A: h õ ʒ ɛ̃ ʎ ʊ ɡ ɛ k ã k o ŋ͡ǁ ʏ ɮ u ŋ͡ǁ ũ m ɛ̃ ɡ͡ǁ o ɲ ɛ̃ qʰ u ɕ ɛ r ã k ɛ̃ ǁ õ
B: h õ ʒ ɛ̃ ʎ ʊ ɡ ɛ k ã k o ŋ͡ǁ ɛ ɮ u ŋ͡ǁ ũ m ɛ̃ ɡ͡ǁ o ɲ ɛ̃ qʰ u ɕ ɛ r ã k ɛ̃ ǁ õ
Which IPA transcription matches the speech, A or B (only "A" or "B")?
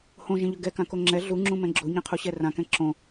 B